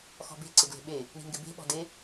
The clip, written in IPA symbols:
x ɔ̤ b e̤ ǀ ɪ ɡ l e̤ ɓ e | ɳ i̤ ŋ ɡ ɪ b e̤ ɓ ɔ̤ d e

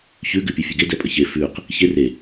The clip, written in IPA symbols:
ç ʉ ɡ ʉ pʲ ʉ fʲ ʉ ɡ e d ɛ pʼ ə ç e f ʉ q | ç e r e

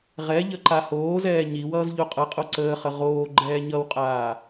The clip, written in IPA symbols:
ʁ ɛ ʎ ə ǃ a h oː z ɛː ɲ i w ʌː z ʎ o qʼ ʌ qʼ o ǀ əː χ ə ʁ oː ɡ͡ǃ ɛː ɲ ʌ w qʼ aː

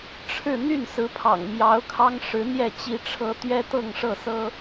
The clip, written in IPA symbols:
ʈ͡ʂʰ ɻ̩˥˧ n̪ y˥˩ n s ɹ̩˧˥ pʰ ɑ̰˨˩ ŋ m j ɑ˧˥ ʊ̯ kʰ ɑ˥ ŋ ʂ ɻ̩˧˥ n̪ j ɛ˥˩ t͡ɕ i˥ ʈ͡ʂʰ ɤ˥ t̪ ɥ ɛ˥ t̪ ɤ˥˧ ŋ ʂ ɤ˥˩ s ɤ˥

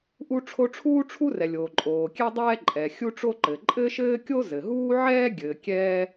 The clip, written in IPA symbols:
ʔ u˥ ʈ͡ʂʰ o˥ ʈ͡ʂʰ uː˥ ʈ͡ʂʰ u˥ r ɛ˩ lʲ oː˩ ǃʼ oː˩ kʲ ɛ˥ dˤ ɛː˥ ǃʼ ɛ˩ xʲ u˥ ʈ͡ʂ o˥ ǃ ɘ˩ ǃʼ ɘ˥ ʃ ɘː˥ kʲ o˥ z ɘ˩ ɦ uː˥ ʕ ɛː˥ ɡʲ ɘː˩ kʲ ɛː˥

